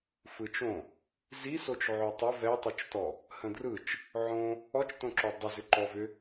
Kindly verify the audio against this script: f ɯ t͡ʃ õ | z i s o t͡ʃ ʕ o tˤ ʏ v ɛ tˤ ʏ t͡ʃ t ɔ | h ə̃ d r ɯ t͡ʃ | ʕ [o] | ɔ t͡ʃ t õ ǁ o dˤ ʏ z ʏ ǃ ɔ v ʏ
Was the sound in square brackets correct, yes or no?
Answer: no